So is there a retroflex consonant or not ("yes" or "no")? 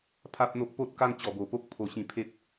no